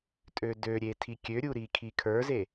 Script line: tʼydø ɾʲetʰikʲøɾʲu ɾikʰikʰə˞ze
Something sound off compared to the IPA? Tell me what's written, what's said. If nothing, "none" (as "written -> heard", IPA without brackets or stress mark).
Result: y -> ø